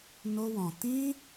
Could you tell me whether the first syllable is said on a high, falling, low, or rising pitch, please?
high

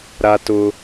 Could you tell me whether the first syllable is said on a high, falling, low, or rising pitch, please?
high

